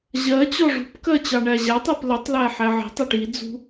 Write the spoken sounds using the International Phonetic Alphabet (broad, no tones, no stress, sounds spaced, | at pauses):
ʑ ɜ t͡ɕ ɔ ʐ ṳ p k ɜ t͡ɕ ɑ ɳ æ ʑ æ tˤ ɜ p l ə tˤ l æ ħ æ ʕ i̤ tˤ æ ʈ i d͡z ṳ